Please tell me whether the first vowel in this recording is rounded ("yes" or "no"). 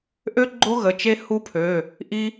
yes